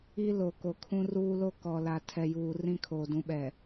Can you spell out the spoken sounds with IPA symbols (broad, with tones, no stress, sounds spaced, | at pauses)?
i˦ l o˨ k o˨ kʰ ũ˦ r uː˦ l o˦ k ɔ˨ l a˨ tʰ ɛ˨ j uː˨ r ĩ˦ kʰ oː˨ d ũ˨˦ ɓ ɛ˨